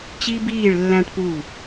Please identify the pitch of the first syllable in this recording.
high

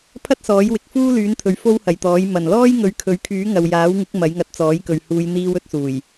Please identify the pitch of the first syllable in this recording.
high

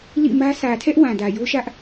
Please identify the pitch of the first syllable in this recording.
falling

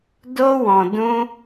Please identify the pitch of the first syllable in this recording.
high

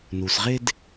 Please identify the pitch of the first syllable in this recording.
low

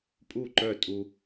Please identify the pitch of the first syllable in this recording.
falling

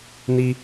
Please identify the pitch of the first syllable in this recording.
high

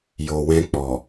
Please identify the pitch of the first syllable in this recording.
low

